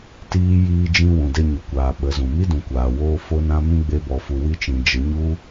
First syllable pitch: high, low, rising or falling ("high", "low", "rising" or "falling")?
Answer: high